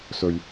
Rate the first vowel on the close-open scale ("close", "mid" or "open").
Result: mid